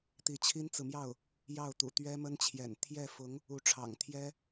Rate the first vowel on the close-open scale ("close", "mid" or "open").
close